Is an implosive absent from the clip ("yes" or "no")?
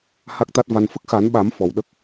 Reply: no